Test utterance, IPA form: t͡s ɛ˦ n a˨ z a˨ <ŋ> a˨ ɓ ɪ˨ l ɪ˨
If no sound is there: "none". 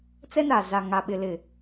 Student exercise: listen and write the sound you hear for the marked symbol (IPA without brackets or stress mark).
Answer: ŋ